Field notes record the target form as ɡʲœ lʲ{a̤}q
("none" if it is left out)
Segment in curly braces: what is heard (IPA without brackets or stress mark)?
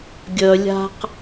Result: a̤